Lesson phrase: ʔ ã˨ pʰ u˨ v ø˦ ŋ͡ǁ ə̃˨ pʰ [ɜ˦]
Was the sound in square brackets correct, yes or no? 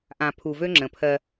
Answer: yes